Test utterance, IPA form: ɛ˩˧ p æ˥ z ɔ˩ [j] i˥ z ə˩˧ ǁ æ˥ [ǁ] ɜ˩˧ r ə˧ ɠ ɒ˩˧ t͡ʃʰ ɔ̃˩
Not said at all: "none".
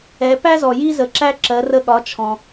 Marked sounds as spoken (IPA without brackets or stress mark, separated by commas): j, ǁ